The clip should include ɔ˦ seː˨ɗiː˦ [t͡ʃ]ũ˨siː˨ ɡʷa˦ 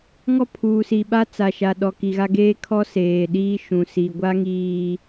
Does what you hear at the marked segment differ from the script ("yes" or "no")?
yes